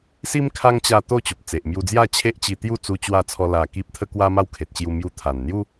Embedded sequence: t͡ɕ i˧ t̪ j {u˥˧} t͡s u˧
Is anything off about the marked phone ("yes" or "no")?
no